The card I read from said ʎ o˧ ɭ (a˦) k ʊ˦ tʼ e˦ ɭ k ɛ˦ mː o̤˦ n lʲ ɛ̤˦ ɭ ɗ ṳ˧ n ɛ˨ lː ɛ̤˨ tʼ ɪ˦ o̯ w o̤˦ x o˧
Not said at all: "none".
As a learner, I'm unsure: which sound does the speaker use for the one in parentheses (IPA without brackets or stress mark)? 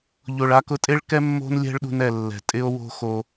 a˦